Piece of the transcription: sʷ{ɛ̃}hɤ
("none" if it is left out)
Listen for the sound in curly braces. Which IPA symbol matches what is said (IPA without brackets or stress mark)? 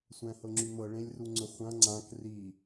æ̃